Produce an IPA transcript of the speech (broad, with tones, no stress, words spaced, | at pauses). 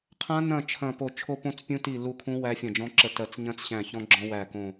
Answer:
qʰã˦˥nɐ̃˦˨ t͡ʃʰɐ̃˦˨po˦˨ t͡ʃʰo˦˥põ˦˥t͡spʲũ˦˥ti˦˨ lu˦˨kʰũ˦˥ wæ˦˥fʲɐ̃˦˨d͡ʒɔ̃˦˥ǁə˦˨ tɜ˦˨t͡s ɲɐ̃˦˥t͡s ɕæ̃˦˨çɔ̃˦˥ɡ͡ǁɔ̃˦˥ wæ˦˨kõ˦˨